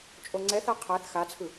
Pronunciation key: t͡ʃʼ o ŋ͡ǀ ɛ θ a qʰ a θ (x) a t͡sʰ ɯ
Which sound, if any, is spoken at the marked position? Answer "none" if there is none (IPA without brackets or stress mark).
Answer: x